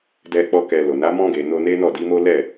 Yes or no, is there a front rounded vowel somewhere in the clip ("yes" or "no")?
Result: no